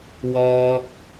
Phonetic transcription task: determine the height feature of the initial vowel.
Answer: mid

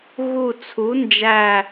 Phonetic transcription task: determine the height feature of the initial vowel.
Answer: high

